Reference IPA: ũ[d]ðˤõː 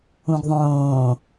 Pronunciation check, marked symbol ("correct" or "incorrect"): incorrect